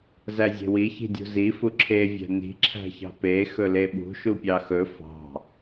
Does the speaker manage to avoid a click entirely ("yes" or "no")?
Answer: no